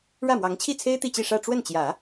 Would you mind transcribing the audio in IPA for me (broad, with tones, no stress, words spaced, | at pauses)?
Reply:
ɻä˥˩mwɑ˧˥ŋt͡ɕʰi˥˩t͡sʰe˥ɪ̯ t̪i˥˧t͡ɕi˥˧ʂä˥˧ ʈ͡ʂwə˥˩nt͡ɕjä˨˩˦